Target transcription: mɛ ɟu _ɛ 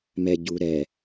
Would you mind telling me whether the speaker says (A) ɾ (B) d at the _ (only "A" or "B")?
A